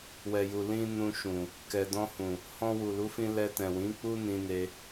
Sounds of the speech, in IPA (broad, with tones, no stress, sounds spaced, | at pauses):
w ɛ˨ j u˨ l ĩ˧ n ũ˧ ʃ ũ˨ | k ɛ˨ d ɔ̃˧ h ũ˨ | h ɔ̃˧ w u˨ l u˨˦ f ĩ˧ l ɛ˧ t ɛ̃˨ w ĩ˨˦ k͡p u˦ n ĩ˧ n e˧